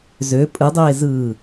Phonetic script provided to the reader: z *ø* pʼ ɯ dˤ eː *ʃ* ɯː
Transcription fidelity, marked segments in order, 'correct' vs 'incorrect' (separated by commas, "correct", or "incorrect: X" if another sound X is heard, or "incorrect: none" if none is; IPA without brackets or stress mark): correct, incorrect: z